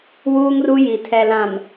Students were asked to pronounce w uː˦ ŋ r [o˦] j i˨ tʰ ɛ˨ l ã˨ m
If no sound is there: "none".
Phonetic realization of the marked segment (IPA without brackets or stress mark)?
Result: u˦